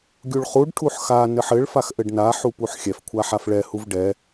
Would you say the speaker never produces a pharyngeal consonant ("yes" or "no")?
no